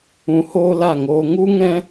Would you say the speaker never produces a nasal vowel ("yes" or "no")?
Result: no